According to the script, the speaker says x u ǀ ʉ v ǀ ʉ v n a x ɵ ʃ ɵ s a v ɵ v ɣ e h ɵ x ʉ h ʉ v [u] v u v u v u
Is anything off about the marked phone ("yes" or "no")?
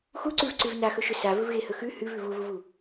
yes